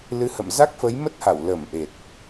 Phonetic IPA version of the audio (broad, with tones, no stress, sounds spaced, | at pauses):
l ɨ˨˦ h ə̰˧˨ m z a˦˥ k̚ f ə˨˦ j m ə˦˥ t̚ h a˧˩ w l ə˧˩ m ʔ e˨˩ t̚